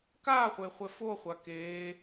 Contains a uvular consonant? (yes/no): yes